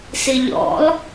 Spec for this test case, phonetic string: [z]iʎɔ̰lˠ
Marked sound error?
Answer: yes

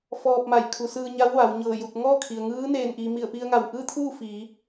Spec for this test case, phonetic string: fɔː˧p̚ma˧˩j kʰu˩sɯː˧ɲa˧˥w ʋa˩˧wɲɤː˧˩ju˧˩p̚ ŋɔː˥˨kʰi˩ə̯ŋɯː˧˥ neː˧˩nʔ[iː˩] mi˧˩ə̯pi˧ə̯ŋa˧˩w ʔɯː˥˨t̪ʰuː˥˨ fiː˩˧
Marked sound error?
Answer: no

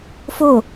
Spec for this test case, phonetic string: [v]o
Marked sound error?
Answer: yes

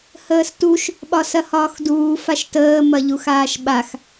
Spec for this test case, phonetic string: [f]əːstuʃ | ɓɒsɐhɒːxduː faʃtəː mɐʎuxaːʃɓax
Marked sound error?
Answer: yes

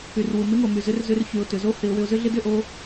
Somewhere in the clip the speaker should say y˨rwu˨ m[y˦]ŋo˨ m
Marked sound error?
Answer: yes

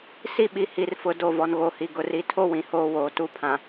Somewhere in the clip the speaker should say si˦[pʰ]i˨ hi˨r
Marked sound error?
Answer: yes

